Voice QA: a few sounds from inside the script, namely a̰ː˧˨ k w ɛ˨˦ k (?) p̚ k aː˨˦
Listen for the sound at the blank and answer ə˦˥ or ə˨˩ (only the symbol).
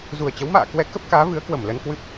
ə˦˥